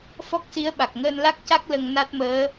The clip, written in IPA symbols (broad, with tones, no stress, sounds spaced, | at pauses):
f ɔ˦˥ k̚ s i˧˥ ə̯ ɓ a˨˩ k̚ ŋ əː˧ n l a˦˥ k̚ c a˦˥ k̚ l ə˧ ŋ n a˦˥ t̚ m əː˧˥